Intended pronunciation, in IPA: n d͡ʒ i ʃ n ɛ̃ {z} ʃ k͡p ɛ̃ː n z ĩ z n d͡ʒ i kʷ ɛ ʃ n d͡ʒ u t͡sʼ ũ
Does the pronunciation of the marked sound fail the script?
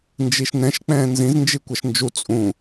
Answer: yes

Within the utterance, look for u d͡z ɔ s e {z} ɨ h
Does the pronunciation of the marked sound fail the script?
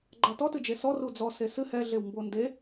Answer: yes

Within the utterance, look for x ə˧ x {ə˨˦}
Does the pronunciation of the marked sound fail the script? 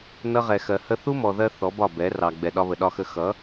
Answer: yes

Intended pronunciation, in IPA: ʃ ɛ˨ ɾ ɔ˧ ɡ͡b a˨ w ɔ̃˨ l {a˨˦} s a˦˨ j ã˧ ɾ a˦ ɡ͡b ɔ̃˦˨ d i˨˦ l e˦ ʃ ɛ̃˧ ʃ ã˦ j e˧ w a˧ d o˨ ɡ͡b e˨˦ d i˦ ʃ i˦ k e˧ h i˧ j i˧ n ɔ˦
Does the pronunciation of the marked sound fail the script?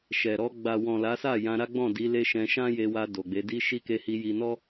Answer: no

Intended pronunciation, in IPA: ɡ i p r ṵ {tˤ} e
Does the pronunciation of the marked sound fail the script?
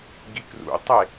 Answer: no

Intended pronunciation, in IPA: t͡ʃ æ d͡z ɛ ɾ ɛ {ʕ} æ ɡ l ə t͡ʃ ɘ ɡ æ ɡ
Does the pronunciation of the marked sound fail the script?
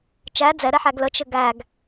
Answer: yes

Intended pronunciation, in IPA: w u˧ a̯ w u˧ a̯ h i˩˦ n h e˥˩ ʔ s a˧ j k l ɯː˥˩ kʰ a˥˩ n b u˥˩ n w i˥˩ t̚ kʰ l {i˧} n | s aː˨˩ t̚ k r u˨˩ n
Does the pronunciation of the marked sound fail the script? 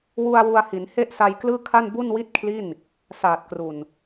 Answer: yes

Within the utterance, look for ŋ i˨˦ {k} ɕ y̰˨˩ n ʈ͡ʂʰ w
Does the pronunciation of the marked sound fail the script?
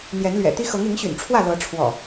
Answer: yes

